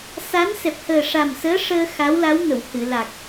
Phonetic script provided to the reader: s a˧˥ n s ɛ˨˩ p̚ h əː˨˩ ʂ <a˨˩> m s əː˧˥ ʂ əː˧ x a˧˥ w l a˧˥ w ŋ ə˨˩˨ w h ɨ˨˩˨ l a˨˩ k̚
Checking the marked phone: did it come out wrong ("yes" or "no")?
no